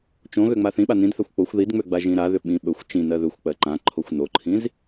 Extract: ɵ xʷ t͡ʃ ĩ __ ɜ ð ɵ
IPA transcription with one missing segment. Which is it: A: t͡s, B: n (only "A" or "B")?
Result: B